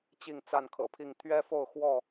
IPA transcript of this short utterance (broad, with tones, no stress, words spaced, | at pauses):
t͡ɕi˥˨ŋt͡sa˥˨nkʰɤ̰˨˩pʰi˥˨ŋ t̪ʰɥɛ˦fo˥˨ʊ̯xwɔ˥˨